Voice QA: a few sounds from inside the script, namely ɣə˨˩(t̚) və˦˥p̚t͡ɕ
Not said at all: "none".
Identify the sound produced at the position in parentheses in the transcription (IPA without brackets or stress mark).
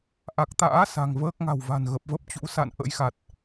p̚